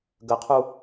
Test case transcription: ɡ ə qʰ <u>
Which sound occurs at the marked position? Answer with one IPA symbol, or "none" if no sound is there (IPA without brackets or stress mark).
u